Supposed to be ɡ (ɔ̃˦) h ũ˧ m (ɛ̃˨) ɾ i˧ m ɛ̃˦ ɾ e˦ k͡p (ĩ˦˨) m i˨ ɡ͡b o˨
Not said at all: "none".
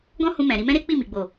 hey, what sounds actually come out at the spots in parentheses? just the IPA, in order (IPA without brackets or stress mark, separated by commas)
ɔ̃˦, ɛ̃˨, i˦˨